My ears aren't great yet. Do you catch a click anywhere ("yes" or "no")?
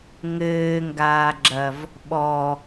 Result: yes